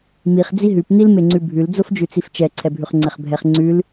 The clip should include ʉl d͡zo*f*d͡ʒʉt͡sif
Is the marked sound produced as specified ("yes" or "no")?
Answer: yes